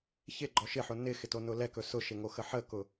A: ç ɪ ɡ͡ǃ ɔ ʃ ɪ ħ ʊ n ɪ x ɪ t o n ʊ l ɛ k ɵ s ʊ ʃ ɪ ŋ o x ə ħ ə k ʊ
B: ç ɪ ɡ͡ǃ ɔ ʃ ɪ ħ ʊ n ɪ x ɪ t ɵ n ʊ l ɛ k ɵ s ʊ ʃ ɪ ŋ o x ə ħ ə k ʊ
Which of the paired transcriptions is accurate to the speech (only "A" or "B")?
A